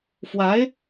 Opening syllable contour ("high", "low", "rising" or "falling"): rising